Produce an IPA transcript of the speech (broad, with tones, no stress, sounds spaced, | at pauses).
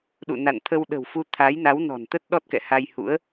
ɗ ṵ˧˨ n a̰˧˨ n t̪ʰ ə˧ w ɗ ə̤˨˩ w f u˧ t̪ʰ a˨˦ j n a˨˦ w n ɔ̤˨˩ n t̪ ə˦˥ t̚ ɗ ɔ˦˥ t̚ k ɛ̰˧˨ h a˧ j h ṵ˧˥ ə̯